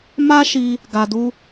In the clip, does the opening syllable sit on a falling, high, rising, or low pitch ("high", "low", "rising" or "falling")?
high